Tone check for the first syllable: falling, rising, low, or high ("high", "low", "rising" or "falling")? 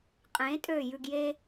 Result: rising